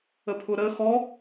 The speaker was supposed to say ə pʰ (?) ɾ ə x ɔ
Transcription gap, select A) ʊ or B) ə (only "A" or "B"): A